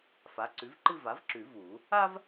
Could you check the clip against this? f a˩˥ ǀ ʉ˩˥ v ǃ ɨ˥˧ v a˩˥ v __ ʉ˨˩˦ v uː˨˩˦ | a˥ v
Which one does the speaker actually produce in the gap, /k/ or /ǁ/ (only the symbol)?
ǁ